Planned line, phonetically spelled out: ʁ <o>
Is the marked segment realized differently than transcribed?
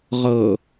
yes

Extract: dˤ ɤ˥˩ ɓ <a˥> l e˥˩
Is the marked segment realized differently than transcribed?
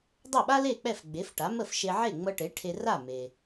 no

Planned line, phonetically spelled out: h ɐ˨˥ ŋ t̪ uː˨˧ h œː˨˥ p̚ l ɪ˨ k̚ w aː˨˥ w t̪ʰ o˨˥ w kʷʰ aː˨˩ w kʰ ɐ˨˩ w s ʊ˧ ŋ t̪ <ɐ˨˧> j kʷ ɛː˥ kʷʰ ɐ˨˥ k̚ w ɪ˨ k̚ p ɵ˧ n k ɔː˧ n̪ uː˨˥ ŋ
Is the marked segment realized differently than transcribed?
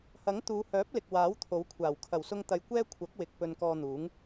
no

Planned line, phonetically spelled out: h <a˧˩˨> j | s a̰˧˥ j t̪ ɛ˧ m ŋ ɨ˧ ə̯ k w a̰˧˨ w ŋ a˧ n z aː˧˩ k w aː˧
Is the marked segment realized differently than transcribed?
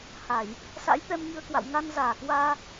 no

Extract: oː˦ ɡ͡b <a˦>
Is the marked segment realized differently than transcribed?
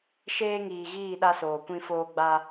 no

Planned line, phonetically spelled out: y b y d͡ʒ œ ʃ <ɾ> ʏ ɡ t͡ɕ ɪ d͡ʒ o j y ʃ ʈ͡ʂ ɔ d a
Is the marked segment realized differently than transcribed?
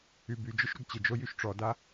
no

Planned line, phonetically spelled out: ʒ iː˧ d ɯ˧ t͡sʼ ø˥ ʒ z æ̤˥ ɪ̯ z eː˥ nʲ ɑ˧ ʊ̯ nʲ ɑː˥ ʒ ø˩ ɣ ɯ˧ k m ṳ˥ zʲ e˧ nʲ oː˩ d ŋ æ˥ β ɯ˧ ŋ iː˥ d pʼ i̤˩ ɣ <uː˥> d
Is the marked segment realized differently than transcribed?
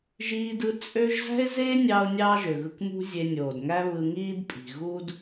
no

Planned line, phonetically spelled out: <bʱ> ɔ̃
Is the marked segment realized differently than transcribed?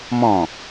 yes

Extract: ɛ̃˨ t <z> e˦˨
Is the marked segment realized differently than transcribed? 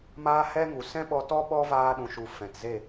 no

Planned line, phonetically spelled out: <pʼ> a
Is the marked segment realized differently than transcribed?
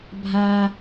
yes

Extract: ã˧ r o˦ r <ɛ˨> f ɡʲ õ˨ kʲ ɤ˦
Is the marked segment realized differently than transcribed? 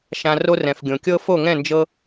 yes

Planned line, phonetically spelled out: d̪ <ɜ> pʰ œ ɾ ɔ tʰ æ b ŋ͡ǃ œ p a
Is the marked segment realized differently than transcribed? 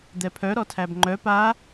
yes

